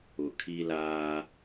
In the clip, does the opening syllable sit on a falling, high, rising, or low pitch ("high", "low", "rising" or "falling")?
low